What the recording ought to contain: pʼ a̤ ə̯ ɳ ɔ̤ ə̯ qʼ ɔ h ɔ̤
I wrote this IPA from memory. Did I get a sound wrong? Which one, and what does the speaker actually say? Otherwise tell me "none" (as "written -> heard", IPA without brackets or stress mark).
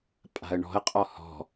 none